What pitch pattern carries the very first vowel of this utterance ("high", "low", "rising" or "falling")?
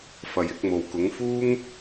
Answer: low